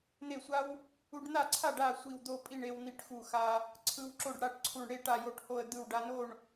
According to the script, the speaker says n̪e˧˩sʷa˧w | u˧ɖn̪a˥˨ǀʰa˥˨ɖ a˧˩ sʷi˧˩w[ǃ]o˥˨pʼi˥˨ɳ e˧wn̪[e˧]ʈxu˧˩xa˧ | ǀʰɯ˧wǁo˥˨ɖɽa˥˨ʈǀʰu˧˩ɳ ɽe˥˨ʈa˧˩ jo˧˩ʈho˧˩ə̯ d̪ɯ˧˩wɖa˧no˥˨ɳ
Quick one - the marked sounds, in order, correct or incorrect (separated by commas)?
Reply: incorrect, incorrect